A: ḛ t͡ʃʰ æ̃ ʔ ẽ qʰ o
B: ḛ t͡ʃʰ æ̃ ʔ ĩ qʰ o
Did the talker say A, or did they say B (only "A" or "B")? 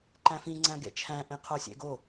A